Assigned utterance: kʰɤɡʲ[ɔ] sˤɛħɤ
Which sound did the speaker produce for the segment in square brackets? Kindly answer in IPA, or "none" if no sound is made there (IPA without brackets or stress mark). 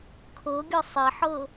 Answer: ɤ